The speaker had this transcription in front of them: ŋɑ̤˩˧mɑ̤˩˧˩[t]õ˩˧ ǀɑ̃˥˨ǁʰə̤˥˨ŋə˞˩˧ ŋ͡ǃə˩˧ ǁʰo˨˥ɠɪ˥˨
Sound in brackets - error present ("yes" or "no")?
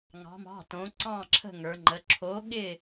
no